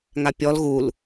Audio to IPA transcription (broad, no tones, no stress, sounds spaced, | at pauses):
ŋ a pʲ ɔ l ɣ u l